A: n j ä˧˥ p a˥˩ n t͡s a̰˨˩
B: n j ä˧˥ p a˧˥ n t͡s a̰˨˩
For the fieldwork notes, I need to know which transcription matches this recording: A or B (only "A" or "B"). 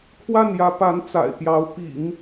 B